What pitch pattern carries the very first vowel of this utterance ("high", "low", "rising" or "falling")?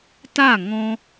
falling